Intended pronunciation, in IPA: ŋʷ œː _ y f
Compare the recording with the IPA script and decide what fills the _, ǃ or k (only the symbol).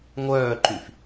ǃ